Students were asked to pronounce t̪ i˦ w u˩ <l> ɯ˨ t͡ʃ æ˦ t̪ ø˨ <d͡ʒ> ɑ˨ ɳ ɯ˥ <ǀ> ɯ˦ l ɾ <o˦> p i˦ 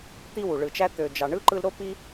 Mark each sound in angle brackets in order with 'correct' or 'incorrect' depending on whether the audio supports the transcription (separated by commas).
incorrect, correct, incorrect, incorrect